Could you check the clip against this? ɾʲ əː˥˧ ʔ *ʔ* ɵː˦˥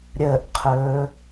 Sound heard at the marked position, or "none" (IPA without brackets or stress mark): qʰ